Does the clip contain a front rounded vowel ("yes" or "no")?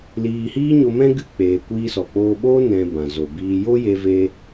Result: no